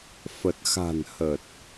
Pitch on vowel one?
low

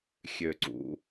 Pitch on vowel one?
low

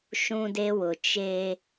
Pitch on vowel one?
high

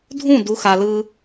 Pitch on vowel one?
falling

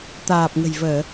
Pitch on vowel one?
low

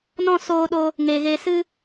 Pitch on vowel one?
falling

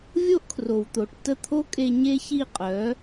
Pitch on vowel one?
high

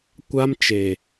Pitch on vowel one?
high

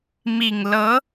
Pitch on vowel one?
low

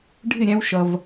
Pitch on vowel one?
falling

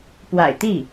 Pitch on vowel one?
low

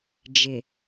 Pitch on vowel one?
low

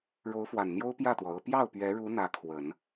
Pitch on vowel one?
rising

